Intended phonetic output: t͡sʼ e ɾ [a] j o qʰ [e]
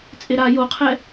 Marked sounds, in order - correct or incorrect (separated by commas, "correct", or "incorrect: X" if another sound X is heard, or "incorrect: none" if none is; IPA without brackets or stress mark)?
correct, incorrect: ɛ